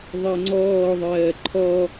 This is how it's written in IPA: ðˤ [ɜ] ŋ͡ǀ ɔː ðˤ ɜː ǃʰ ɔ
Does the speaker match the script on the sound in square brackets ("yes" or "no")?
yes